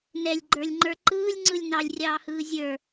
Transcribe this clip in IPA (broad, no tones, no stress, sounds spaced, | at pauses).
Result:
n ɛ lʲ ɡ͡ǃ ə˞ lʲ ŋ͡ǃ ə˞ ǃ ɯː lʲ ŋ͡ǀ ɯ lʲ n ɑ lʲ rʲ ɑː h ɯː zʲ ə˞